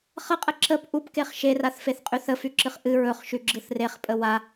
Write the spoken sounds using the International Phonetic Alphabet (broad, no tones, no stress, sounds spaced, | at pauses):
χ ə qʼ ə ǁ ə p ʔ u p k e χ ʃ e r a θ f e θ qʼ y θ ə f y ǁ ɨ χ ʔ ɨ ɹ ɵ χ ʃ y ɡ͡ǁ ɯ θ r e χ pʼ ə w a